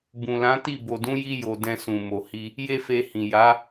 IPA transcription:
b ũ˨ l ã˨˦ t i˦˨ b o˨ d ũ˨˦ j i˧ j o˨ d ɛ̃˧ s ũ˨ m o˨ h i˧ | j e˦ f e˧ h ĩ˨ j a˨˦

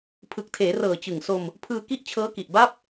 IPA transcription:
pʰ ɯ˨˩ k̚ tʰ eː˩˦ r ɤː˨˩ t͡ɕ ɯ˨˩ ŋ s o˧ m | pʰ ɯː˧ k i˥˩ ʔ t͡ɕʰ ɤː˦˥ k i˨˩ ʔ b a˥˩ p̚

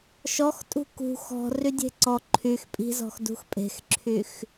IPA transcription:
ʃ ɔ x tʼ ṳ k ṳ x ɔ̤ r y dʲ e̤ ǀ ɔ ǃʰ y x pʼ i̤ z ɔ̤ x d ṳ x pʼ e̤ x ǁʰ y x

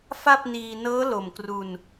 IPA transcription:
f a˥˩ p̚ n iː˧ n ɤː˦˥ l o˨˩ m k r u˧ n

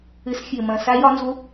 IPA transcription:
ɘ˨˥ s xʲ ɘ˨˩ m ɐ̃˨˩ s a˦˥ j ɒ˨˥ n z o˦˥

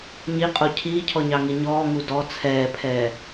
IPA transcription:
ɲ i qʼ o cʰ iː cʰ ɔ ɲ ɑ ŋ i ɲ ɔː ŋ u d ɔ t͡sʰ ɛː pʰ ɛː

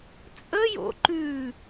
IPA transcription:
t͡sʼ ə j o̰ ǃ ʉ

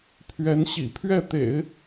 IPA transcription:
pʰ ɥ ɛ˧˥ n ɕ ḭ˨˩ pʰ ɥ ɛ˥˩ t̪ ḛ˨˩˦ ɪ̯

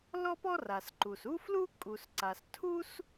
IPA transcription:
l ɔ˥ p ɔ˥ r a˩ s ǃ u˩ s u˥ f l u˥ kʼ u˩ s ǀ a˩ s tʰ u˥ s

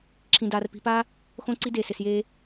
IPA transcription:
ǁʰ ĩ˧ d aː˧ r p i̤˧ p aː˦ | x õ˦ ǀ i˦ d e˦˨ s ɪ˧ s j eː˦

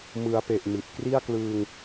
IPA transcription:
m ɯ˩˦ a̯ p e˨˩ ʔ m i˨˩ t̚ k r i˥˩ a̯ k l ɯː˧ ŋ

